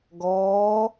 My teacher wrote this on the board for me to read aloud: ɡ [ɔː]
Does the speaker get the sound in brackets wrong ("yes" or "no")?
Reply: no